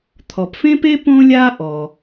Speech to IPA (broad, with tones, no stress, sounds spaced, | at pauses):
t̪ʰ ɔ˩ p f ẽ˥ p e˥ p õ˥ lʲ a˥ ʔ ɔ˩